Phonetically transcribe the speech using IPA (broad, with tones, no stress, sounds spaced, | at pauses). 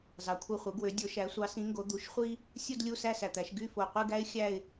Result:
z ɑ˩˧ kʷʰ ɯ˨˩ χʷ ɯ˩˧ ɡ w ø˩˧ dʲ o˩˧ ʃ æ˩˧ sʷ ɑ˩˧ s ĩ˩˧ ŋ ɡ o˩˧ d̪ u˩˧ ʃ χʷ i˦ | sʲ u˦˨ d lʲ u˦˨ s æ˦˨ s æ˨˩ t̪ æ˩˧ ʃ ɡ y˦˨ f o˨˩ qʷ i˦˨ ɡ æ˦ ɪ̯ xʲ æ˦˨ ɪ̯